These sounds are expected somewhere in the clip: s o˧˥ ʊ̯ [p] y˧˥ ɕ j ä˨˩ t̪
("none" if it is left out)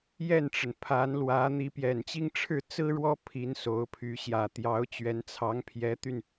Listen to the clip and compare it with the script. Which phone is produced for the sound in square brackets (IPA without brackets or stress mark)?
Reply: pʰ